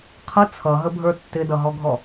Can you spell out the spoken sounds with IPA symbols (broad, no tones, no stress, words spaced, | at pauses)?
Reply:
qʰʌ t͡sʰʌɦəbʱə˞ tːɪdʌɦɔɡʱɔ